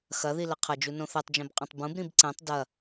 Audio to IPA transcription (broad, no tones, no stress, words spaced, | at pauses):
xɐði lɐqʰɐd͡ʒu nõθɛtˤd͡ʒɛ̃b qʼɐ̃tˤbũbɾĩb ǀɛ̃tˤ dɐ